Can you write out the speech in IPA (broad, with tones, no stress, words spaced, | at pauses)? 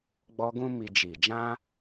ɡ͡bɔ˧ɡũ˦ mi˧d͡ʒi˨ d͡ʒã˧